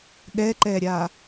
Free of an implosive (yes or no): no